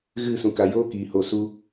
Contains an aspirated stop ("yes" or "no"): no